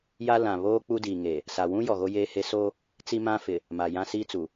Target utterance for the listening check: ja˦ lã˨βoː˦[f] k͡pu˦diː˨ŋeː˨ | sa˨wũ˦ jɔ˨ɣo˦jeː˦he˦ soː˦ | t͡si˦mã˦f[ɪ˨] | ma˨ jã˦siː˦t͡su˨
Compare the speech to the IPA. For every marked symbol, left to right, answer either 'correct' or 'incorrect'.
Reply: incorrect: none, correct

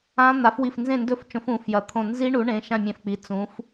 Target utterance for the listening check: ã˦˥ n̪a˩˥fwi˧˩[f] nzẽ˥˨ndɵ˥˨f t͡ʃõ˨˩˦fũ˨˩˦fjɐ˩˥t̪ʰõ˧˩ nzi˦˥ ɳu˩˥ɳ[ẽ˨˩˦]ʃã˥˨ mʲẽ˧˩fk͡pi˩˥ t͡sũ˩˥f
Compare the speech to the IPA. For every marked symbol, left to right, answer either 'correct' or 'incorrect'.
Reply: correct, incorrect: ẽ˩˧˩

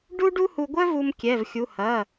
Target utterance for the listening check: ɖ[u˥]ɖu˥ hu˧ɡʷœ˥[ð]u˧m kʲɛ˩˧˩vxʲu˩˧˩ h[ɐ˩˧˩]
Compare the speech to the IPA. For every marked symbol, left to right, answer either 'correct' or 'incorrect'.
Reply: correct, incorrect: v, correct

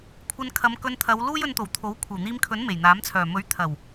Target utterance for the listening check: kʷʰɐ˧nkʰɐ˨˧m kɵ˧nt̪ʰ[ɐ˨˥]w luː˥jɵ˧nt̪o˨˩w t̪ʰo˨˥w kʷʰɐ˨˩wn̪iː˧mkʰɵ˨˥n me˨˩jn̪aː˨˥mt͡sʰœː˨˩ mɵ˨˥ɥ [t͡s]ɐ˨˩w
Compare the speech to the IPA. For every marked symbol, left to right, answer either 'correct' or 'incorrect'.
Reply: incorrect: ɐ˨˧, incorrect: t̪ʰ

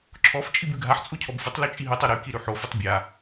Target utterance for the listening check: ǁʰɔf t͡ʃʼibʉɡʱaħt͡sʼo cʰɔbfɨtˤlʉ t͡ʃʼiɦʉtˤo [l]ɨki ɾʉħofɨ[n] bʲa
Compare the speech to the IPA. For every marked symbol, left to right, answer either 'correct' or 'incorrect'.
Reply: incorrect: ɾ, incorrect: tˤ

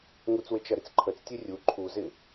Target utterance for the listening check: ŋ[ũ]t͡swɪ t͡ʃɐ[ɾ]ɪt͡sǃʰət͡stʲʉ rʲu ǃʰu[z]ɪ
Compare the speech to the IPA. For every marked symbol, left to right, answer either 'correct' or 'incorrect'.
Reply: incorrect: u, correct, correct

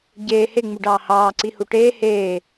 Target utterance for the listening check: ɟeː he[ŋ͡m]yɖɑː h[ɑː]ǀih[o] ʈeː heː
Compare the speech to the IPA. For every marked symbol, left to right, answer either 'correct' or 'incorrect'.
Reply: correct, correct, incorrect: u

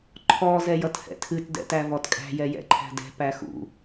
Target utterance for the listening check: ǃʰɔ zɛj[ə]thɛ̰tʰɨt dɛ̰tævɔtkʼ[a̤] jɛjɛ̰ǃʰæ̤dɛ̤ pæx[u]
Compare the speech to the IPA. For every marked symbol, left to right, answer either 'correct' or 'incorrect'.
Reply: incorrect: ʌ, incorrect: æ̤, incorrect: ṵ

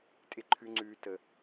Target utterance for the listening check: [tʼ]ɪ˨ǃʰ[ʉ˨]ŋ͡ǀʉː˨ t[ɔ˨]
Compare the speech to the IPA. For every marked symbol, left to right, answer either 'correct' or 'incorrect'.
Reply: correct, correct, incorrect: ə˨

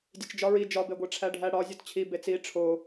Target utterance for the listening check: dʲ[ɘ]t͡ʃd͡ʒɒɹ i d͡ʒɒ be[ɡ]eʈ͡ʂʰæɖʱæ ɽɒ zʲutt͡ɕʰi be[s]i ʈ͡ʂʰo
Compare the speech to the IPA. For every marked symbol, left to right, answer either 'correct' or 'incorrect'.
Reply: incorrect: e, incorrect: ɡʷ, incorrect: t͡s

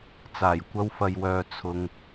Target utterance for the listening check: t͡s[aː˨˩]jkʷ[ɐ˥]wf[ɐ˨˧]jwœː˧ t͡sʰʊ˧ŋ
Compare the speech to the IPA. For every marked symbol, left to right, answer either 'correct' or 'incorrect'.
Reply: correct, correct, incorrect: ɐ˧

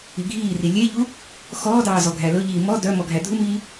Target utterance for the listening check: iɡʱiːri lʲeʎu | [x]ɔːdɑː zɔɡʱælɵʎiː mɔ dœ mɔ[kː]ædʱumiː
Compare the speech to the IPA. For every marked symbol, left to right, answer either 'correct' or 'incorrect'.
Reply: correct, incorrect: ɡʱ

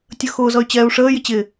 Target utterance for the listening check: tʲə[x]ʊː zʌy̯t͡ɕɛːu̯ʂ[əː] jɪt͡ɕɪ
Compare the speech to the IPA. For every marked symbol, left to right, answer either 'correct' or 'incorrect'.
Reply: correct, correct

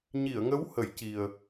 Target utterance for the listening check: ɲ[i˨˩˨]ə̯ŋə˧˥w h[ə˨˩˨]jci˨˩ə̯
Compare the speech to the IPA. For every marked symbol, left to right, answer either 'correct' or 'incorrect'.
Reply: correct, incorrect: ə˨˩˦

